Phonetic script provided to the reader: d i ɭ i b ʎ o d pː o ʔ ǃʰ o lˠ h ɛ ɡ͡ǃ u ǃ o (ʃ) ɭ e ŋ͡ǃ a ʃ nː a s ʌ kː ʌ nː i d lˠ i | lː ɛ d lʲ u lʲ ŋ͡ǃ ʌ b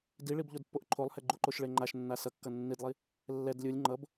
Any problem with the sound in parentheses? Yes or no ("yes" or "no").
no